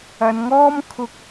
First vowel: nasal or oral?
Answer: oral